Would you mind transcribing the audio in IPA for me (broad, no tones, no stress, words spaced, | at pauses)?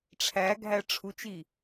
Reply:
ʈ͡ʂʰæɡʱæ ʈ͡ʂʰut͡ʃi